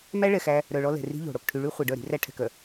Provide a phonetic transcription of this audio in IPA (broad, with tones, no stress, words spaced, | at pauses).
mæ˦ɭɛ˨xæ˦ | ɾœ˨ɭɔ˦ lɛ̤˨ri̤˦ʎo̤˨ɽo˨k ʈʰy˨ɭy˦ χʷe˨ ɖœ˦˨ɾi̤˦ræ˦ ʈʰɛ̤˨kœ˨